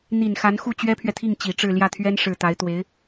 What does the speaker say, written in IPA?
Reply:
n̪ i˨˩ n x a˧˥ n x u˥˩ t͡ɕ ɥ ɛ˥ pʰ ɥ ɛ˨ t̪ʰ i˥˩ ŋ t͡ɕ i˨˩ ʈ͡ʂ ɻ̩˥˧ l j ä˥˩ t̪ʰ ɥ ɛ˥ n ʂ ɻ̩˨˩ t̪ a˧˥ ɪ̯ t̪ w e˧˥ ɪ̯

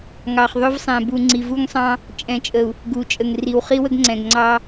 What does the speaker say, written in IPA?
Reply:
ŋ ɑ˨ χ ðˤ ɵ˦ v sˤ ɛ̃˨ b u˨ ŋ͡ǀ i˨ v u˦ ŋ sˤ ɑ̃˦ | t͡ʃʼ ɛ̃˨ t͡ʃʼ ə˨ u̯ | ɡ u˨ t͡ʃʼ ə˨ ŋ r i˨ w χ i˦ w ə˦ ɡ ŋ͡ǀ ɛ̃˨ ɡ ŋ͡ǀ ɑ˦

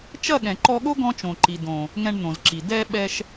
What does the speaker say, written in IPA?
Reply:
t͡ʃ ɐ˦˨ ɠ ɛ̃˨ ǃ ɔ˧ ɠ o˦ ɡ ɔ̃˦ t͡ʃ õ˨ ǃ i˨ d õ˨ | ŋ ɛ̃˧ ɳ n̪ õ˨ z ǁ i˨ d ɛ˧ ɓ ɛ˧ ʃ

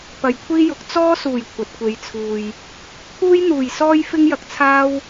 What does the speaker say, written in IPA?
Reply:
p ɐ˨ j kʷʰ iː˥ j ʊ˨˥ k̚ t͡s ɔː˥ s uː˨˩ j kʷʰ ɐ˨ t̚ kʷ e˨ j t͡sʰ uː˨ j | t̪ʰ uː˥ j n̪ uː˨˩ j s ɔː˥ j f ɪ˥ ŋ j ɐ˧ k̚ t͡sʰ aː˥ w

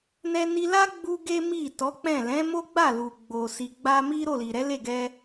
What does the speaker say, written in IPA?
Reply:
n ɛ˧ n i˧ l a˦ ɡ͡b u˦ ɡ e˦ m i˦˨ t ɔ˨˦ k͡p ɛ̃˦˨ l ɛ̃˨˦ m o˦ ɡ͡b a˦˨ l u˨ ɡ͡b o˨ s i˨ ɡ͡b a˧ m i˦ ɾ o˦˨ l i˨ ɾ ɛ˨˦ l e˦˨ ɡ ɛ˧

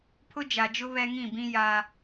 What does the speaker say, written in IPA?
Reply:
pʰ ʊ˦ d͡ʒ a˨ d͡ʒ ʊ˦ β ɛ˦ ŋ ĩ˦˨ b ĩ˦ j a˦

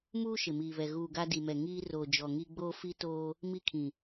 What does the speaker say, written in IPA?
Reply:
m uː˦ ʃ ɪ˨ m iː˨ β ɛ˨ ɣ uː˨ ɡ a˦ d i˨ m ɛ˨ ŋ iː˦ r oː˨ d͡ʒ ɔ˨ ŋ i˦ ɡ͡b oː˦ f i˦ t oː˦ | m i˦ kʰ ĩ˨

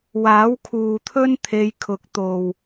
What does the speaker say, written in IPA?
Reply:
w aː˨˥ w kʰ uː˨ t̪ʰ ɵ˥ n t̪ʰ e˧ j kʰ ʊ˨˥ k̚ t̪ o˨ w

